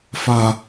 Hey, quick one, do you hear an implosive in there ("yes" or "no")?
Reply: no